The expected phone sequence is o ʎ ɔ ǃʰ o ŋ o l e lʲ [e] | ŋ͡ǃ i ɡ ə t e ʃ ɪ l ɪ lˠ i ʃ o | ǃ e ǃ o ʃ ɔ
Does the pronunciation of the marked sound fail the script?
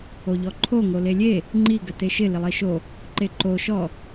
no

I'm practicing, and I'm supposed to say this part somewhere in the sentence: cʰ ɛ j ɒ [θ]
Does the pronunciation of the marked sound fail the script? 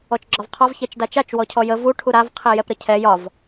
yes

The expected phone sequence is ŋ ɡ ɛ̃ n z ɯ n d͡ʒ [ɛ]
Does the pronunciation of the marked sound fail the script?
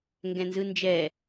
no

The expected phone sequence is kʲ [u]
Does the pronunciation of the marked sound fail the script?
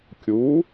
no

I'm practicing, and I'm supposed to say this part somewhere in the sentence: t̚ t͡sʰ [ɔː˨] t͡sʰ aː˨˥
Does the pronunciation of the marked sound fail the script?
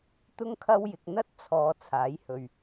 no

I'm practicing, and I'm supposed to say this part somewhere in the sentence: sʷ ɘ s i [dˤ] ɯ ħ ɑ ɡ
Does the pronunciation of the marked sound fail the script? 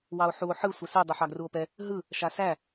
no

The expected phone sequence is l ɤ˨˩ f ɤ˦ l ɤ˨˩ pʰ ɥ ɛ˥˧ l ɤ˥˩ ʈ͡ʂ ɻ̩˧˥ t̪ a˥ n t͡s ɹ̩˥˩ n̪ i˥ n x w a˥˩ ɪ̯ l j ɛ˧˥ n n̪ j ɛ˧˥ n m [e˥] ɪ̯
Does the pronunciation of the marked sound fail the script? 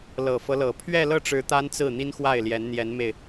yes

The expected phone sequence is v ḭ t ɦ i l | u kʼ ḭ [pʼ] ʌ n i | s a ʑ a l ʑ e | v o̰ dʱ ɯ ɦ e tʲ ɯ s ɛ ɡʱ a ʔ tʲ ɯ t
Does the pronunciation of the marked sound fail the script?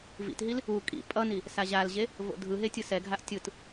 no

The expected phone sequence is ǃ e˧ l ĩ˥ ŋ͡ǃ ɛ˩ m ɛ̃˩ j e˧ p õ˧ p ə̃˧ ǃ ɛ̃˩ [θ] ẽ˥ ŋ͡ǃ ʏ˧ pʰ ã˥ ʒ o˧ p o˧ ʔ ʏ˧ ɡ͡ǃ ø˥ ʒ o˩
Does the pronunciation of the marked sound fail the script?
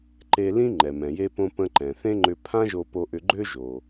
no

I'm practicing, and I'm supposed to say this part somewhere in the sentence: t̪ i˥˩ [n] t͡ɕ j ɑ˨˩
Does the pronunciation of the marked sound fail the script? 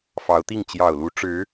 yes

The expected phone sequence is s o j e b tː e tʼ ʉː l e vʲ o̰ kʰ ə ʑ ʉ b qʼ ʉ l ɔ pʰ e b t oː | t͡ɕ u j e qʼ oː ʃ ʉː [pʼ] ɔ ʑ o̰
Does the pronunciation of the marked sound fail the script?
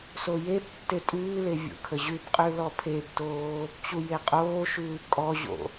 yes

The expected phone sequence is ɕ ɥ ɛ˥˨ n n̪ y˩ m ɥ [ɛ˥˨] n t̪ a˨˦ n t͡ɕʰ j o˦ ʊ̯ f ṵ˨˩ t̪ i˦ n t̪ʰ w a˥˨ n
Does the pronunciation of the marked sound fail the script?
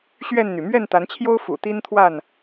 no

